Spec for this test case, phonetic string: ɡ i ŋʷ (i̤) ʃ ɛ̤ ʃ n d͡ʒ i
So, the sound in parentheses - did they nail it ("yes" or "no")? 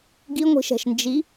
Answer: yes